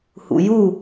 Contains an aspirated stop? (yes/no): no